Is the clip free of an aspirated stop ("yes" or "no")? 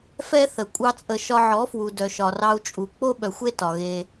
yes